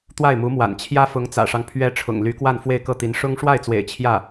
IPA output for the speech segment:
t̪ w a˥˩ ɪ̯ m u˧˥ m w a̰˨˩ n t͡ɕʰ j ä˥ f ʊ˧˥ ŋ t͡s ä̰˨˩ ʂ ɑ˦ ŋ pʰ ɥ ɛ˧˥ ʈ͡ʂʰ ʊ̰˨˩ ŋ l y˧˥ k w a˥˧ n f w e˥˧ ɪ̯ k ɤ˥˩ t̪ i˧˥ n ʂ ʊ˥ ŋ ʂ w a˥˩ ɪ̯ t͡s w ḛ˨˩ ɪ̯ t͡ɕʰ j ä˥˩

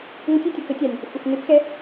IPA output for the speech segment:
ŋʷ ə tʲ ɪ tʲ ʊ k ə tʲ a nʲ | xʷ ə x n ɪ p x ɛ

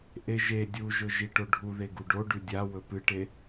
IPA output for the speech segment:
ʔ e ʒ e dʲ u ʒ ɵ ʒ i ʈ o ɖʱ u ð e ɡ u ɖ o ɖ ʉ dʲ a w ɵ p ɨ ʈ e

